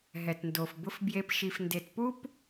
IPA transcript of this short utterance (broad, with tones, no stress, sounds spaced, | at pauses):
ɦ ɛ˨ t n d o˨ f b ʊ˧ f b j e˧ p ʃ i˨ f n d e˨ t p u˦ p